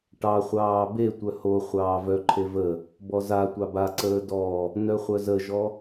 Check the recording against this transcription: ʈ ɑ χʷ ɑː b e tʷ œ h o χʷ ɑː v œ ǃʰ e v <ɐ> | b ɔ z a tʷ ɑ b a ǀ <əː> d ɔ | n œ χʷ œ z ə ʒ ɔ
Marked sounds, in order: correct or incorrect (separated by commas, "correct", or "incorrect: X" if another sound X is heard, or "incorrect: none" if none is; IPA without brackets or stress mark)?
incorrect: ə, correct